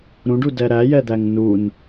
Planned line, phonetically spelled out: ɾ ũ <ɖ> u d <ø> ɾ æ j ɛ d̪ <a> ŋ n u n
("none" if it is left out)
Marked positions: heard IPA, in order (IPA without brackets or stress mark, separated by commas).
ɖ, ɛ, æ